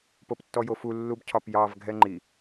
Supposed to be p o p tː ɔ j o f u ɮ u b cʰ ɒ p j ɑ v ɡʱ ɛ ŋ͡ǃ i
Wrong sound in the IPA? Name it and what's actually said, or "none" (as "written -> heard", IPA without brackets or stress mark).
ɮ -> lː